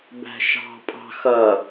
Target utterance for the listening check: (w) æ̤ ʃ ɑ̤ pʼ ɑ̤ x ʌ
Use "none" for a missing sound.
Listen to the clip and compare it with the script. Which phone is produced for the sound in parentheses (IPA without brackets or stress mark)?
b